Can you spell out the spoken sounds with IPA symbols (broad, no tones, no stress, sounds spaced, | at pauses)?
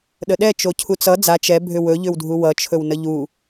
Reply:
ɗ ə ɗ ɛ t͡ʃ o cʰ u t͡s ʌ d͡z a t͡ʃ ɛ bʱ ʏ w ɵ ʎ ʏ w dʱ u w ʌ t͡ʃʰ ɵ w n ə ʎ u